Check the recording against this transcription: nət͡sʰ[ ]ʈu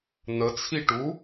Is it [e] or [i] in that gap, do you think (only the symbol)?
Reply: i